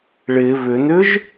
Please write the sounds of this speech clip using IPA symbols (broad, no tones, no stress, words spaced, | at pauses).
ɭɪ βʏnʏʒ